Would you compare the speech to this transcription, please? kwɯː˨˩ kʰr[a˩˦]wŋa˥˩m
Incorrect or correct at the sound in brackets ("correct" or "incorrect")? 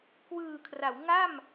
correct